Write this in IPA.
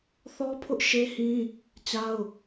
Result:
θɔ˦pʰʊ˦ʔʃe˦hĩ˦ | t͡ɕa˦ʊ̯

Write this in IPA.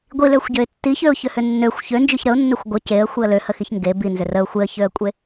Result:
ɡʷiløxʷɟøɪ̯ tːiçøʊ̯çøhʏ nːøxʷ çønd͡ʒyç ɾəʊ̯nːøxʷ ɡʷə ceə̯xʷiə̯ løhəxiç ŋɡe binzʏ rəʊ̯ xʷeə̯çøə̯kʷʼe

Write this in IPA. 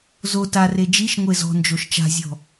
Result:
zo tare d͡ʒiʃ ŋʷezɔ̤nd͡ʒoʃ t͡ʃa̤zʲɔ̤

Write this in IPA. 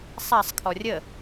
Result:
sˤasˤ kʰɔrʲə

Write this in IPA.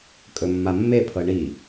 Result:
kʼɵmːamːepʰɤ ɳi

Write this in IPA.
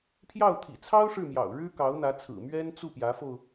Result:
pʰjɑ˥˩ʊ̯t̪ʰḭ˨˩ t͡sʰɑ˥ʊ̯ ʂɻ̩˥˩mjɑ̰˨˩ʊ̯ ɻɻ̩˥kɑ˧˥ʊ̯n̪ä˧˥t͡sʰɹ̩˨˩ mɥɛ˥n t͡su˥˩pjä˧˥fo˧ʊ̯

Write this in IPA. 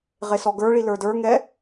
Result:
ʁesɔɡə˞ɭi lə˞də˞ŋɛ

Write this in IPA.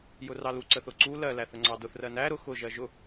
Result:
jʊrɑlu ǀəθʊǀu lɜ læθəŋ͡ǀɑdʊθ rɜnæ ɾʊ xʊ ʒɜʒʊ

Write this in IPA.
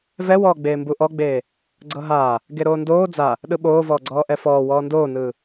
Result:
vɛwɔːɡ͡beː mbuʔɔɡ͡beː | ɡ͡ǀɤɦaː | ɡeɾoːndoː d͡za | ɗɯɓoːvɔːɡ͡ǀɔː ʔɛfɔː wɔːndoːnɯː

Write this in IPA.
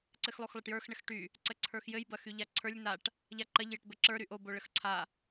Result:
ǀɘxlˠoxlˠəʈjə˞x ɳəxʈy | ǀəǀʰə˞xjɘj bɐxyʎaǀʰə˞lʲ naʈ | ʎaǃɐʎ jɘʈbɘǁə˞ ɾyʔo boɭəxǀʰa

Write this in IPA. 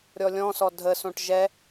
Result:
ɾʲɔlʲɔ̃sɔ dʱəsõʈ ʒɛ

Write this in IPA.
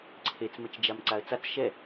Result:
ǀʰet͡smɘt͡ʃd͡ʒam ǀaə̯t͡sat͡s ʃɛ

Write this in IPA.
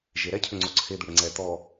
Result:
ʒeɾɛcʰʉŋ͡ǀo ǀʰed̪uɽe ŋ͡ǀɛ t̪ɔ

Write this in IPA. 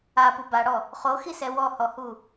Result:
apu baɽɔ | χoxisɛ wɔhɔhu

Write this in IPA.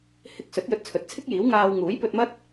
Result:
hɪ˧k̚sɵ˨˥t̚ jɵ˧t̚t͡sʰɵ˨˥t̚t͡sʰɪ˥k̚jiː˨˥w ŋaː˧w ŋuː˨˥jpɵ˧t̚mɐ˥t̚

